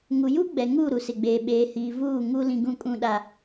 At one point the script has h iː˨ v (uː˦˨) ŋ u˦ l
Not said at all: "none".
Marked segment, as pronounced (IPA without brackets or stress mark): uː˦˨